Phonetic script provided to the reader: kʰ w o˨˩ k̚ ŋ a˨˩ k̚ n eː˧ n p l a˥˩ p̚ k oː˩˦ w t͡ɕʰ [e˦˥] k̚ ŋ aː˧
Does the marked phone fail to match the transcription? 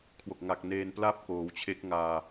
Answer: no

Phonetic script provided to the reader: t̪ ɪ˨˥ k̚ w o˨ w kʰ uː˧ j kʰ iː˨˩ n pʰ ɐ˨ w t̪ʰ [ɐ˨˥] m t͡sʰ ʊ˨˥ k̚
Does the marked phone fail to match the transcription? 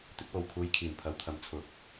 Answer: no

